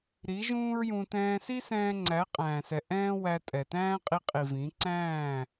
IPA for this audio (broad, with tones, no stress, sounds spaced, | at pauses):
ɾ i˨˦ ʒ ũː˦ ɹ j ũ˧ t ɛ̃ː˧ s i˦ s ɛ̃ː˧ ŋ͡ǀ æ˨˦ qʼ æ̃ː˨ s ɛ˨ ʔ ɛ̃ː˦ w æ˧ tʼ ɛ˨ t æ̃ː˦ qʼ i˧ qʼ i˨ v ĩ˨˦ ǀ æ̃ː˦˨